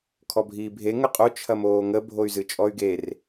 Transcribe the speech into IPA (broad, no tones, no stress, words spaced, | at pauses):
kʰɔbʱiːbʱe ŋəqʼo t͡ʃʰɐmoːŋə bʱoy̯zɨt͡ʃʼɔy̯ɡer